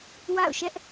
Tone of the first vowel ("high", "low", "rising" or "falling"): falling